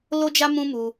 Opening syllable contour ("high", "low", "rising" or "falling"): high